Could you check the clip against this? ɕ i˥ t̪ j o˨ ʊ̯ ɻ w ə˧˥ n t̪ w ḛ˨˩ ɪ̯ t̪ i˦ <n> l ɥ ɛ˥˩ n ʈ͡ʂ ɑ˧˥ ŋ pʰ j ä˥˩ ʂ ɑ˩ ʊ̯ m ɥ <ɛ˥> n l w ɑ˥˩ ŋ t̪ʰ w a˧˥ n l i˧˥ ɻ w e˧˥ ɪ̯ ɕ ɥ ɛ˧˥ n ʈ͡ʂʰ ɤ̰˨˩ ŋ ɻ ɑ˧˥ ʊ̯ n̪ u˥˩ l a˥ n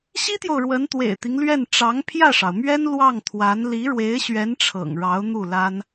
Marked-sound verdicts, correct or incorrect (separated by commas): incorrect, correct